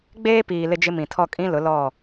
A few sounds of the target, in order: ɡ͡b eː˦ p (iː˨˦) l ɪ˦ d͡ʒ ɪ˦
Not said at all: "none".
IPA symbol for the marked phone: iː˨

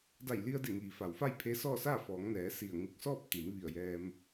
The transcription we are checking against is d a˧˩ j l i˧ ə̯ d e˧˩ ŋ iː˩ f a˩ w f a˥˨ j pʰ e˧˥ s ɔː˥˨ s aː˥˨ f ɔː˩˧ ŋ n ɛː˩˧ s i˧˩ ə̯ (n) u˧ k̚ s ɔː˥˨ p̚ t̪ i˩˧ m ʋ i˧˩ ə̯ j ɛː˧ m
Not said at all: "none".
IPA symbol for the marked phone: ŋ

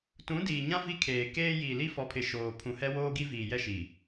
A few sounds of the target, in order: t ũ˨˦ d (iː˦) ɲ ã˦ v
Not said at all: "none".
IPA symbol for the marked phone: iː˨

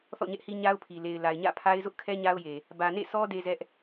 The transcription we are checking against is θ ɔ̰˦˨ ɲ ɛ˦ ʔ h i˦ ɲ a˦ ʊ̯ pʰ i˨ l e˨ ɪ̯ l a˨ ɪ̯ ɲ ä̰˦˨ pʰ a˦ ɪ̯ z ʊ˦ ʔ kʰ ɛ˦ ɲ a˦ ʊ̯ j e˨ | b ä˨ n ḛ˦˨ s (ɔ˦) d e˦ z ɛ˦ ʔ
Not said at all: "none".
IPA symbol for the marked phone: ɔ˦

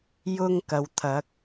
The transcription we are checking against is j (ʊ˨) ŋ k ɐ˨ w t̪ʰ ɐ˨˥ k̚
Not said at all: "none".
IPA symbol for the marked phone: ʊ˥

